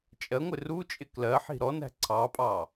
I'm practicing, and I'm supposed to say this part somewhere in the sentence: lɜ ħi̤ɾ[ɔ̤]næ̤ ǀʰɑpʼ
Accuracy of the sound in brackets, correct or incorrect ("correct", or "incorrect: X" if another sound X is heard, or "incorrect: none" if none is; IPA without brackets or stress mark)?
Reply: incorrect: ɔ